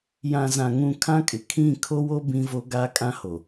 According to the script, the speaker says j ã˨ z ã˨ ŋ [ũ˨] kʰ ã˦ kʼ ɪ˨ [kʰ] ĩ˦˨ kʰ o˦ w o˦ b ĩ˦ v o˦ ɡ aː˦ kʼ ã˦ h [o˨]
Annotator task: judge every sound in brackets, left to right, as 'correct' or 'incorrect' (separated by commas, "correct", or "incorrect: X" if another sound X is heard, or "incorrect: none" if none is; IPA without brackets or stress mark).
correct, correct, correct